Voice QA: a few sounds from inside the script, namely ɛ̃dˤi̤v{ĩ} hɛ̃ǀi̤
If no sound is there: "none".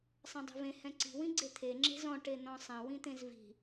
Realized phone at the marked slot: ẽ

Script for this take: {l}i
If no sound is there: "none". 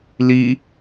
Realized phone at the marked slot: l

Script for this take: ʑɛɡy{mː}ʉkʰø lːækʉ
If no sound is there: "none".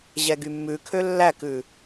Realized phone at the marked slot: mː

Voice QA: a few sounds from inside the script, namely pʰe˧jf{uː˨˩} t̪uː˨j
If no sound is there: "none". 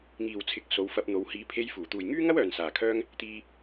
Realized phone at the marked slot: uː˨˩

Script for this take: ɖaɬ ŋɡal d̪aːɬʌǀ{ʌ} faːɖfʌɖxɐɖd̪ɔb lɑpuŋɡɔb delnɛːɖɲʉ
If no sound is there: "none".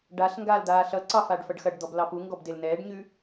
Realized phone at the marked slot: ɑ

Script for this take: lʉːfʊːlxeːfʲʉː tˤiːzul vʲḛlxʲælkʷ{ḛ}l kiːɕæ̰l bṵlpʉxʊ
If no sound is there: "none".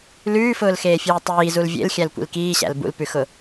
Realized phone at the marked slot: ḭ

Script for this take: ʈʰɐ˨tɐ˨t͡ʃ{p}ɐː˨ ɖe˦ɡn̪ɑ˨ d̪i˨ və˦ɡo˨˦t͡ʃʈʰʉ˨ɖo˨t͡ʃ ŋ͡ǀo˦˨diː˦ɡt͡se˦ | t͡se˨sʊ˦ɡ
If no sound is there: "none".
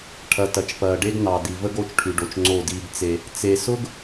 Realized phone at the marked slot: p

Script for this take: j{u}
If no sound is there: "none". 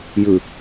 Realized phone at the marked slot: ʉ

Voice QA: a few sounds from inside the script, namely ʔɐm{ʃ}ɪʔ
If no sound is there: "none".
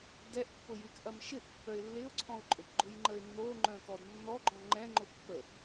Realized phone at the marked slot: ʃ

